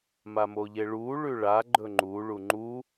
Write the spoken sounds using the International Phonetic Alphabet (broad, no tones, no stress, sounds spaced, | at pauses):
m a m o ʎ e ɭ u ɭ ʉ ɭ a ɡ͡ǃ ɵ ŋ͡ǃ u ɭ u ŋ͡ǃ u